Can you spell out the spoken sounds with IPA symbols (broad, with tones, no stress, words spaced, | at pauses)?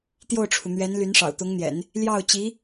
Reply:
t̪jo˥˩ʊ̯ʈ͡ʂʰu˩n̪ɥɛ˧˥n ly˧˥nʂɑ̰˨˩ʊ̯t̪ʊ˧˥ŋn̪jɛ̰˨˩˦n | ljɑ˥˩ʊ̯t͡ɕi˧˥